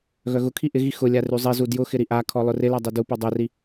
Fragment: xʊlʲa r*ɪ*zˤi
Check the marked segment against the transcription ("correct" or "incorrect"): incorrect